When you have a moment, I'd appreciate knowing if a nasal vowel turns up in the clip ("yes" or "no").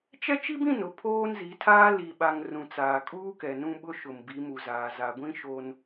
yes